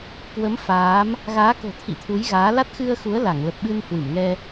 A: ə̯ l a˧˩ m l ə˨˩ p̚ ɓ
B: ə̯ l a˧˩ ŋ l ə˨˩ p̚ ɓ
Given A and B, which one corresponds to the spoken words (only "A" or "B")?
B